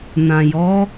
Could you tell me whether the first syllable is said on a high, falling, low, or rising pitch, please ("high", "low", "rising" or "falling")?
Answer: low